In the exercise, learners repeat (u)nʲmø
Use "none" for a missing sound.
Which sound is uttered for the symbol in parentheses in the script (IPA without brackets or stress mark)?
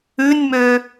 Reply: ʉ